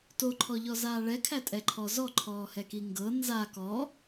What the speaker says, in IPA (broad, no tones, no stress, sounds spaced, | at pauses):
t o ǃʰ ɔ ʎ ɔ z aː ɭ ɛ kʰ æ tʼ ɛ ǃʰ ɔ z ɔ ǃʰ ɔː h ɛ k i ŋ ɡ ɤ n z a k ɔ